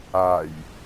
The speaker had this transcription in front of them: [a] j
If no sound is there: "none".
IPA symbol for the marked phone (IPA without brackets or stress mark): a